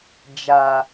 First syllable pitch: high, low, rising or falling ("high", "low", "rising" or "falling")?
high